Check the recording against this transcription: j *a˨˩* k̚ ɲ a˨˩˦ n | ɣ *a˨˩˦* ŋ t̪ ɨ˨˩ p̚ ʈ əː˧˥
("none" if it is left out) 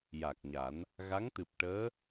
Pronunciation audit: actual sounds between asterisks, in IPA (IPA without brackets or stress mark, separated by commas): a˨˩, a˧˥